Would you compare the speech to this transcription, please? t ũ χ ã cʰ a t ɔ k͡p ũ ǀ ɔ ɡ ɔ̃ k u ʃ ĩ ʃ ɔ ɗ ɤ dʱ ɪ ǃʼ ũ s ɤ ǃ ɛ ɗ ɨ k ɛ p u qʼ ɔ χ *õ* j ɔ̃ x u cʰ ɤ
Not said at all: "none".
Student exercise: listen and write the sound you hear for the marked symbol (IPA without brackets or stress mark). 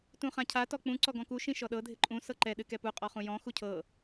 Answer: ũ